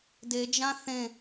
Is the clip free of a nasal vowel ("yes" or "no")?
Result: no